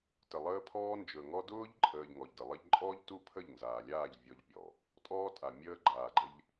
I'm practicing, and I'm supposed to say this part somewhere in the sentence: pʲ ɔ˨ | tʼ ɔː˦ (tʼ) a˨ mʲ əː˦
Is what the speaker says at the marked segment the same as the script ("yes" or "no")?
yes